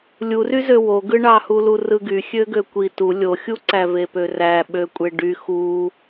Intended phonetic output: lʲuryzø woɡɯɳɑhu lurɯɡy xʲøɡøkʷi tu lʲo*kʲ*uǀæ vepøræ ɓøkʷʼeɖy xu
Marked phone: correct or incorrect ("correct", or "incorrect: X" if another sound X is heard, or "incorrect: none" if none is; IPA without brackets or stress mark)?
incorrect: xʲ